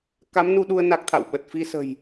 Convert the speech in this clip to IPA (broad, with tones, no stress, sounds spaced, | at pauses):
k a˨˦ m n u˧ ɗ u˧ ə̯ n a˦˥ k̚ t̪ʰ a̰˧˨ w ɓ ə˨˩ t̚ f i˧ s ə̤˨˩ j